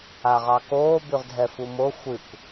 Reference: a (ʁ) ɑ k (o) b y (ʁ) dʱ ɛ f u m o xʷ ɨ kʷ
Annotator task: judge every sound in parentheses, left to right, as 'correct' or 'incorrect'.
correct, incorrect: oː, correct

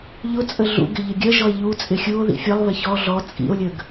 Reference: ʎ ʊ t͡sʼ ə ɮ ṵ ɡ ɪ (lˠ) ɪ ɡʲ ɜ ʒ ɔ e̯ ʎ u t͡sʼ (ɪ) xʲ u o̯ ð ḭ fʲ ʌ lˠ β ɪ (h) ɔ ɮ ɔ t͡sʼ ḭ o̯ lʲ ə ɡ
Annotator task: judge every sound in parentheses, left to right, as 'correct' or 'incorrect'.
incorrect: ʎ, correct, incorrect: ç

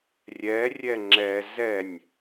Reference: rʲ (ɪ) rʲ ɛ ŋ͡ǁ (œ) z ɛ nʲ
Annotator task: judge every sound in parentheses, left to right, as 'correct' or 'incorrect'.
incorrect: ɛ, incorrect: ɛ

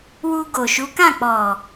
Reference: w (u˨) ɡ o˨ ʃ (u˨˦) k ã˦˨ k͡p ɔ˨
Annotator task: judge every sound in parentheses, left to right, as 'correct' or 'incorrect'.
incorrect: u˧, correct

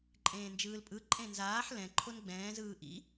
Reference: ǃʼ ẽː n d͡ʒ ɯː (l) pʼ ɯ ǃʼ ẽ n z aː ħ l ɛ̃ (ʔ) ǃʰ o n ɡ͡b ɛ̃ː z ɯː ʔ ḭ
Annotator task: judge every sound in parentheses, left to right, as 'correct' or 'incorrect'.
correct, incorrect: none

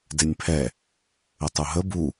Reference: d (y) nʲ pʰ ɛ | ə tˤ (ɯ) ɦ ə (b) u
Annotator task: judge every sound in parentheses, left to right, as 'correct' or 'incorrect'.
incorrect: e, incorrect: u, correct

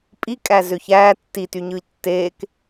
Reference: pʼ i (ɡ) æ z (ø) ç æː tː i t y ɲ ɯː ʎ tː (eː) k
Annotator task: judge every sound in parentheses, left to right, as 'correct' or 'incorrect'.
incorrect: kʼ, correct, correct

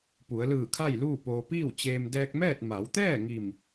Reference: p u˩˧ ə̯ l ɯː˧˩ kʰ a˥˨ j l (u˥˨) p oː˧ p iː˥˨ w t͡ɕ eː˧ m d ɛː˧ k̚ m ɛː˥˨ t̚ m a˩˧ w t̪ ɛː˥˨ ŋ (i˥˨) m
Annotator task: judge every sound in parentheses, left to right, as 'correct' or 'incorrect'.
incorrect: uː˥˨, incorrect: i˧˩

